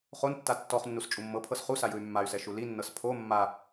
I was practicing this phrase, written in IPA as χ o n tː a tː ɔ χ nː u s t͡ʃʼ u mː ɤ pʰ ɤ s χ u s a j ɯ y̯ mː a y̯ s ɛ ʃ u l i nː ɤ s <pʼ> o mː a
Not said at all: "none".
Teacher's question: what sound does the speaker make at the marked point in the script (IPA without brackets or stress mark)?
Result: pʰ